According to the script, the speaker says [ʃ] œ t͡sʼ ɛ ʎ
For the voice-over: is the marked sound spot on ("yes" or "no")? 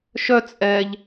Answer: yes